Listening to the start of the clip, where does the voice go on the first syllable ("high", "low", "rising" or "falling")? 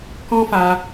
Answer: high